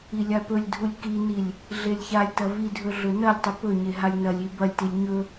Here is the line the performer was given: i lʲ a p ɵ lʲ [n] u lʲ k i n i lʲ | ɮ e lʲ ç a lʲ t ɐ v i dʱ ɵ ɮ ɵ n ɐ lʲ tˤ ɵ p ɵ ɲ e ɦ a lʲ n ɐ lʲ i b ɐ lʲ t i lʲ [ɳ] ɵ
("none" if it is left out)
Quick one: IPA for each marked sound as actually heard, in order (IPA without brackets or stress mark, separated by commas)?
dʱ, ɲ